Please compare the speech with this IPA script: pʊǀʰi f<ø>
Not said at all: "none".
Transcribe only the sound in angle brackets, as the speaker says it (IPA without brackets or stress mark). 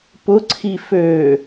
ø